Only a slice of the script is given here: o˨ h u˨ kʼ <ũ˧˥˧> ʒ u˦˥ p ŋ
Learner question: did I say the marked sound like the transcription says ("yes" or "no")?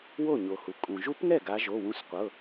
no